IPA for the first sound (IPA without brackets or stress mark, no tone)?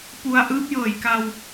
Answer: p